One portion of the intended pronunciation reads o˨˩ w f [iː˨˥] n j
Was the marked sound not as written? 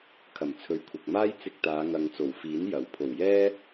no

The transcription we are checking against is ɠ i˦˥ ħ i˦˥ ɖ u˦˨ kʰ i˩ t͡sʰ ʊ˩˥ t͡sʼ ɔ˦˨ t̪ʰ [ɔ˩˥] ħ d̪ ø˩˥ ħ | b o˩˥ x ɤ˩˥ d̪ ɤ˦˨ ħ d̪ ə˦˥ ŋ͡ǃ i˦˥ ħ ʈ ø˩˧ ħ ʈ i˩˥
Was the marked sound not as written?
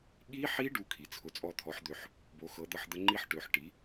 no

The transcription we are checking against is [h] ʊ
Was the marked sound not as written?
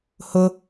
no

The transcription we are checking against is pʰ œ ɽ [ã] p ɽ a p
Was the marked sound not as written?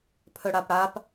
yes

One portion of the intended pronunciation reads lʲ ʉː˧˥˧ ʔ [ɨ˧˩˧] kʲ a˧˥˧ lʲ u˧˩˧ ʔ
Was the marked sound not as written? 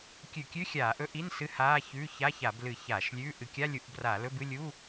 no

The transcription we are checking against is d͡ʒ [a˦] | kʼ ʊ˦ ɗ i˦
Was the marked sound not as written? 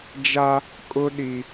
no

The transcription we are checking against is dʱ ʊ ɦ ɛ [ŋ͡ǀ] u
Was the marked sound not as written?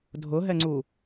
no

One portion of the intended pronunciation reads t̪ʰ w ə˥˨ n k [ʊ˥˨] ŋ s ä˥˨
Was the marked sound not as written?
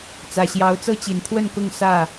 no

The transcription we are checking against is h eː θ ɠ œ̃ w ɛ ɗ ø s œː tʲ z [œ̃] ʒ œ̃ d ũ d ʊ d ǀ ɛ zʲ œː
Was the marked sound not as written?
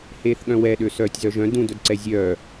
yes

